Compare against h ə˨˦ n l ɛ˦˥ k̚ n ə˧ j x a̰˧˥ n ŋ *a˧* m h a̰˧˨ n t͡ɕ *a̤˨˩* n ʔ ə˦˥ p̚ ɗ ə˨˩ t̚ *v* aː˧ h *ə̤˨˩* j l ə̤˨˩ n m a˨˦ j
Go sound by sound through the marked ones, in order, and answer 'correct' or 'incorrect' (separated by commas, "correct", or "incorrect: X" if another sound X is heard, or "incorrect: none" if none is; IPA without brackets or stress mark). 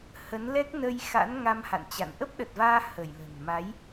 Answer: correct, incorrect: a̰˧˨, correct, incorrect: ə˧˩